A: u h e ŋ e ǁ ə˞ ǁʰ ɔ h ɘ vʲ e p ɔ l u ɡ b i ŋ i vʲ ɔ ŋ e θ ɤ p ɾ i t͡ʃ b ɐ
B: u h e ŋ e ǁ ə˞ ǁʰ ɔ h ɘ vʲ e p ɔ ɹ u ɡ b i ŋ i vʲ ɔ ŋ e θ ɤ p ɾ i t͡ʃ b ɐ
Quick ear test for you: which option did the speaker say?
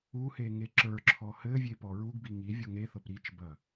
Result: B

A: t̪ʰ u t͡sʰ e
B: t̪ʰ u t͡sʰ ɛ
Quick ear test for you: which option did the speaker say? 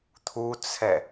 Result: B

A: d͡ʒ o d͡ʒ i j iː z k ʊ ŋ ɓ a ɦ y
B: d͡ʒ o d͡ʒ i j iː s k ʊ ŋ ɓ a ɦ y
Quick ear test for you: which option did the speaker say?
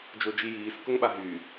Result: B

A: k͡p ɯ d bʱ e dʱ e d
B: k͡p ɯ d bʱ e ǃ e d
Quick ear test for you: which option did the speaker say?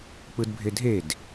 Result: A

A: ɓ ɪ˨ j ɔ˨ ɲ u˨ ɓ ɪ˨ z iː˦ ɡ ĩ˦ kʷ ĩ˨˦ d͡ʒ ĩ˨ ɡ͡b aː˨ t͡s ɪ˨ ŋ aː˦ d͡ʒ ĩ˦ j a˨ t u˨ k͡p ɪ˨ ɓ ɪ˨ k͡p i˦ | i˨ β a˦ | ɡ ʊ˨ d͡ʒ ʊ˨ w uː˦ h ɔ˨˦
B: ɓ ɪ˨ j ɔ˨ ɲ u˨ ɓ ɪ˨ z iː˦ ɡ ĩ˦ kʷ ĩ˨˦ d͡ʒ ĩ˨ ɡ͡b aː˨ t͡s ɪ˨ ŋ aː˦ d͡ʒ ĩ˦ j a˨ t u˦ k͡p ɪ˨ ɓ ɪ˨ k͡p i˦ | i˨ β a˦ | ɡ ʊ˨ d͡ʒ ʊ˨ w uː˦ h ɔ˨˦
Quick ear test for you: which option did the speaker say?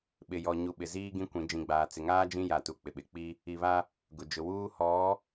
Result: A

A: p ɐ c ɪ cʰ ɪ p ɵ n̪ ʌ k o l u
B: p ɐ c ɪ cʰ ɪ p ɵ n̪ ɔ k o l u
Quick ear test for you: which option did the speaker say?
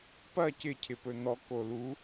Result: B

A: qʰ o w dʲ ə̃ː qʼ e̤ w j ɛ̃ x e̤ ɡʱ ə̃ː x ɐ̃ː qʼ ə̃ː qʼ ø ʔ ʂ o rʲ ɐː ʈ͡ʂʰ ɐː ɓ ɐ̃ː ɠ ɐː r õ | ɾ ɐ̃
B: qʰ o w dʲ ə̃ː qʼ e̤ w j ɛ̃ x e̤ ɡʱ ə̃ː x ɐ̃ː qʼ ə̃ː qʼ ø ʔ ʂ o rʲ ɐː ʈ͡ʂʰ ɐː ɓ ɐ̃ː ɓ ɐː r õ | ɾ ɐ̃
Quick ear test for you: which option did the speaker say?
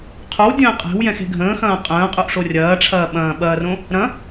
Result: B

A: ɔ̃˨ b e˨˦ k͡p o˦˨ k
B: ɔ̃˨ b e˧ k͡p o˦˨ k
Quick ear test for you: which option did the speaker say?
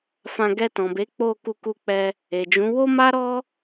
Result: A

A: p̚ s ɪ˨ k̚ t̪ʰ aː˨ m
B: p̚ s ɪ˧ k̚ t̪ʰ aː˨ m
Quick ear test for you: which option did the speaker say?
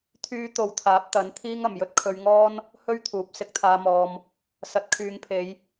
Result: B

